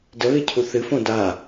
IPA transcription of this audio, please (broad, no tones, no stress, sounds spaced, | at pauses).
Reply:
d ə β e cʰ u θ ɨ f õ d a